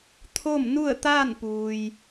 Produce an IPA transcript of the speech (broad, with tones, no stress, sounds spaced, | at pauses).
t̪ʰ o˥˨ m n u˥˨ ə̯ t̪ aː˥˨ n p uː˩ j